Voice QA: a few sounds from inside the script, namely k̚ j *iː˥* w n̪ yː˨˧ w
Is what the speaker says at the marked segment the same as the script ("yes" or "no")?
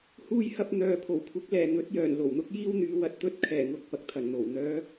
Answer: yes